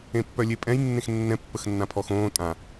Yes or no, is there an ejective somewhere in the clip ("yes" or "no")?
yes